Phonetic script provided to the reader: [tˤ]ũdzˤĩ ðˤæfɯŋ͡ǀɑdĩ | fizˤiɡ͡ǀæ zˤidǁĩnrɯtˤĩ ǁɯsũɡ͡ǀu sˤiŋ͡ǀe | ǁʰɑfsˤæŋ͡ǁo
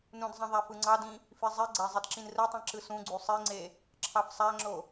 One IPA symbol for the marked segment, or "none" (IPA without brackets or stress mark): n